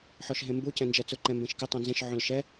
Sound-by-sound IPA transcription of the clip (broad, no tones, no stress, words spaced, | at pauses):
ħɔʃɦẽmbu cɛ̃nd͡ʒɛt͡sʊ ǃɛ̃mbẽʃkɪ tˤõnzẽʃ ʕõlʃɛ